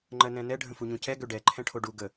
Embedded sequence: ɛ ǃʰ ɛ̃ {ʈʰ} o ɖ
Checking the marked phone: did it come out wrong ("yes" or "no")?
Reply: no